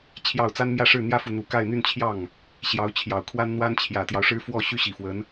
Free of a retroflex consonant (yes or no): no